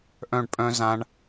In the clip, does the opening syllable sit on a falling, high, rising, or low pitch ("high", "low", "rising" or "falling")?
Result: falling